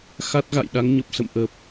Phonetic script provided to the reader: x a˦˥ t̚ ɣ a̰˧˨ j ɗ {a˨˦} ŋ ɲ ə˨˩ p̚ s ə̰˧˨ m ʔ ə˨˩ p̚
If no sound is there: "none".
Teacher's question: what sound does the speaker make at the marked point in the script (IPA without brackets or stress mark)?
a˨˦